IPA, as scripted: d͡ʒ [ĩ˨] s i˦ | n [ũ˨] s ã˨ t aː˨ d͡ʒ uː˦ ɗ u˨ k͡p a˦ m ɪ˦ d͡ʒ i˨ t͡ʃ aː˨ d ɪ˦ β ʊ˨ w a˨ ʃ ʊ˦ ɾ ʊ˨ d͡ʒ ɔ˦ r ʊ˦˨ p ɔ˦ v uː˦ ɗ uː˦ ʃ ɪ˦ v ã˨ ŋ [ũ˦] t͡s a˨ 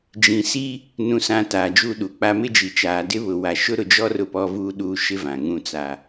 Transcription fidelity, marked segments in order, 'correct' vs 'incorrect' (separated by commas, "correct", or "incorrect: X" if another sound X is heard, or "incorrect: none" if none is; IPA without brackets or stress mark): correct, correct, correct